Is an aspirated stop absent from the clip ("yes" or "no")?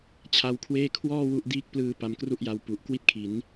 no